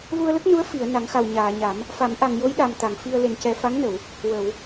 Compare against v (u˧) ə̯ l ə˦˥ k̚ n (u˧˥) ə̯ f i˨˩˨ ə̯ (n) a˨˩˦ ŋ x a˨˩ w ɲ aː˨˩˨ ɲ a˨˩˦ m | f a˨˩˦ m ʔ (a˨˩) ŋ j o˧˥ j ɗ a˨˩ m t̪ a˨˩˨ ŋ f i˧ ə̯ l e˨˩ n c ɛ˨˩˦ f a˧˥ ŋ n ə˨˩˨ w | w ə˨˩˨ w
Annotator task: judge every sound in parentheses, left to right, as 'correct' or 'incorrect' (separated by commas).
correct, correct, correct, correct